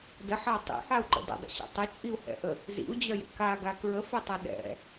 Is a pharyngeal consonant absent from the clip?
no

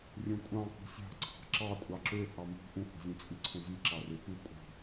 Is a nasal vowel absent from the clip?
no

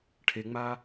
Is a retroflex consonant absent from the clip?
no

